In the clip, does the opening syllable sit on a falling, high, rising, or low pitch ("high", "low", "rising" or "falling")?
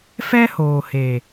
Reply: high